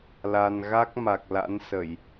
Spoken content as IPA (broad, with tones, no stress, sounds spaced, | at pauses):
l a˧ n ɣ a˦˥ k̚ m a˨˩ k̚ l a̰˧˥ n s ə˧˩˨ j